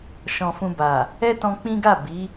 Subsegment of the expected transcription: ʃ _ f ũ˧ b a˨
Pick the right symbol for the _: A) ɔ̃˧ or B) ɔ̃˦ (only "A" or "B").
A